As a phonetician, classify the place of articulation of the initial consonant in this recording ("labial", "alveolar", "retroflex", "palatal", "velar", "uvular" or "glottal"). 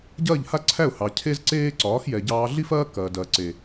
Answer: palatal